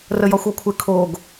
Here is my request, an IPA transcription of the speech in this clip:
rəjɒxʷɔkʷʰɪ kʰoɡ

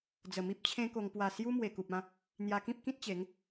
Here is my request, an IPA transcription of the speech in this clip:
d͡zə˨˩mi˦p̚t͡ɕʰẽ˦ko˧ŋ pwa˨˩ sju˦ mwe˨˩ku˨p̚ã˥˧ | n̪ja˧kĩ˦p̚kĩ˦t̚t͡ɕe˨˦ŋ

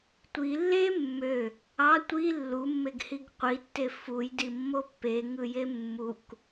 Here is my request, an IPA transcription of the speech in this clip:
tʷi lːe mːø | ɑ tʷi lːumːeɡhiɡ qʷitːe fujdimːo pːeŋɯje mːuk

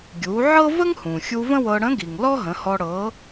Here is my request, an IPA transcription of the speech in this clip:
ɡʲu˩˧ʕɤ˥ və˥ŋhũ˩xʲu˧ və̃˥wɤ˧ ɽə̃˧˥ɡi˩ŋ lɔ˥ɦə̃˩˧hɔ˧ ɽɤ˩˧

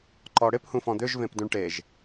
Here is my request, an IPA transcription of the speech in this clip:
ǃɔɽɪphũ fɔ̃d̪øʒvẽp dũɳʈeʒ

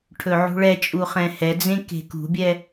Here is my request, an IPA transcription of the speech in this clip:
ʈʰɵʕṳɭɛt͡ʃʼu χɛ̃hɛd͡zẽ ke̤kṳbʲɛ

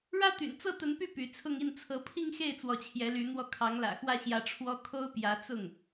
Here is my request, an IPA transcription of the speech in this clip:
ɻä˥t̪y̰˨˩n t͡sɤ˥˩t̪ə˧˥npy˥˩ py˧˥ t͡sʰʊ˥˧ŋi˥˩n t͡sʰɤ˧˥pʰi˥˧ŋxe˥˩ɪ̯ t͡swɔ˧˥t͡ɕʰjɛ˧˥ly˧˥n̪wɔ˥˩ kʰɑ˧˥ŋlä̰˨˩xwä˥˩ ɕjä˥ʈ͡ʂʰwɔ˥ kʰo˥ʊ̯pjä˧˥ t͡sʊ˥˩ŋ

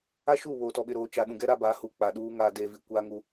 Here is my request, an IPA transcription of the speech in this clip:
a˦ʃu˦˨ βoː˨tɔ˨ɓɪ˨ɾoː˨ t͡ʃa˨ɗũ˨ɡɛ˦ ɾa˦baː˨˦hu˨ k͡pa˨ɗuː˦ ŋaː˨deː˨vi˨ kʷaː˦ŋu˦

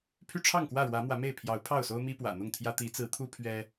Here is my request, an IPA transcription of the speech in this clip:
pʰy˦ʈ͡ʂʰɑ˥˨ŋkwä˥˨ɻwä˨˦ mwä˨˦me˥˨ɪ̯ pʰjɑ˨˦ʊ̯pʰɑ˥˨ʊ̯so˦ʊ̯ mi˦pwä̰˨˩n̪ʊ˥˨ŋt̪ʰjä˦ t̪i˨˦t͡sɹ̩˨˦t̪ʰu˦ pʰɥɛ˦

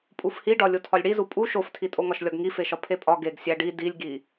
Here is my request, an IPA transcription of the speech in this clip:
pʼufhiɖɒ lʲotʰɒlʲɽizu pʼu ʃoftʰitʼoŋɒʃ lʲɒɡŋifeʃɒ pʰepʼɒ ɡeɡ sʲæɖi dilʲɡi

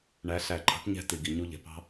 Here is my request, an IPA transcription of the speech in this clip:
ɳæ˨˦ ɬæ˨ǃʰɑ̤˨˦ʈɲɛ̤˧ ti˨ɡi˨ɲu˧ ʎɛ̤˨pɑ̤˦

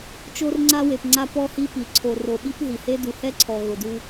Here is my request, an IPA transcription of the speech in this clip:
t͡ʃo˦rŋ͡ǀa˦we˨pŋ͡ǀa˦ pɔ˦hi˦pi˨ ǀʰo˨ro˨ɓi˦p ɦi˨he˦ du˨hɛ˦ǀʰɔ˨ ɣʊ˨du˦

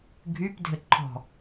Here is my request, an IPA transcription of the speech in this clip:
ɡʱypdʱɘǃʰɔ̤

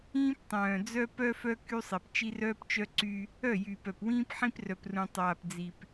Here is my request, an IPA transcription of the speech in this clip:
ĩː˦ptˤœ̃ː˨d͡zœ˦ pœ˦fœ˦ ky˦sˤe˨p t͡ʃi˦rœː˦pt͡ʃœ˦ǀy˦ | œ˦˨jyː˨pœ˨pwĩː˦p ħĩ˦prœ˨prũ˨ tˤaː˨pd͡zi˨p

